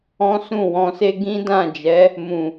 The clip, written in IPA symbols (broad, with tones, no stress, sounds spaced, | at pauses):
ɔ̃˦ s ũ˦˨ w ɔ̃˧ s e˦ ɡ ĩ˦ d ã˦˨ d͡ʒ ɛ˨˦ | m ũ˨